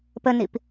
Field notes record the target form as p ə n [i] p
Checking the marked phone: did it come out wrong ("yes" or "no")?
no